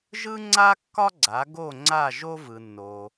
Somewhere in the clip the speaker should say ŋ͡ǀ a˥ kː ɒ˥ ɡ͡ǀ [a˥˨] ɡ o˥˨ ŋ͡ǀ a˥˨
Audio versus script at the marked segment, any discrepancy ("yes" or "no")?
yes